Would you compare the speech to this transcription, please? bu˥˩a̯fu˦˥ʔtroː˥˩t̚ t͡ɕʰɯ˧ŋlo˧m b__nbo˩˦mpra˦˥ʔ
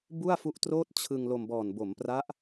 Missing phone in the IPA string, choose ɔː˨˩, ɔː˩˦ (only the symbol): ɔː˨˩